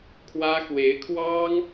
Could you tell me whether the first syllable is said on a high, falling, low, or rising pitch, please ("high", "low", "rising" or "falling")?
high